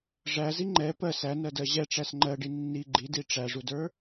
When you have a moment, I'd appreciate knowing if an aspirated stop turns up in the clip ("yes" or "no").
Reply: no